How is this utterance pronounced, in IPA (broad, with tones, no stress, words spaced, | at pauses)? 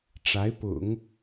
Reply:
ʈ͡ʂa˧˥ɪ̯pʊ̰˨˩˦ŋ